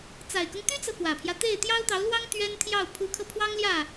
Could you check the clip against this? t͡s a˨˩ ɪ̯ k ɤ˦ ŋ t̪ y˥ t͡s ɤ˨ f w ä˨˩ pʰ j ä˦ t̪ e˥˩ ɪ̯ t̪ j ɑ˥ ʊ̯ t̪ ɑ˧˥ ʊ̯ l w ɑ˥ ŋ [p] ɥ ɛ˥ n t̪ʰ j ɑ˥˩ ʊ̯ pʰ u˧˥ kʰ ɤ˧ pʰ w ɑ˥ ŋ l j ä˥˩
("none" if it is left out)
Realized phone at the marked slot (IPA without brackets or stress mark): t̪